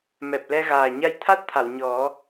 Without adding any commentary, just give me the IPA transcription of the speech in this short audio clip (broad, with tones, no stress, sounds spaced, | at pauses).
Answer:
m ɛ˨˩ p̚ l ɛ˧ ɣ aː˨˩ ɲ a˧ j t̪ʰ a˦˥ t̚ t̪ʰ a˨˩˨ w ɲ ɔ˨˩˦